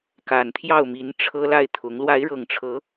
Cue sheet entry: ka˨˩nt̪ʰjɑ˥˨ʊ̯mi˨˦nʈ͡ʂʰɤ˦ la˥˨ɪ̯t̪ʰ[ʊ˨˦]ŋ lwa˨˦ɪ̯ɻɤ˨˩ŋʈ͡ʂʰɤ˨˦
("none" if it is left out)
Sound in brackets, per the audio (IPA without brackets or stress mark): ʊ˨˦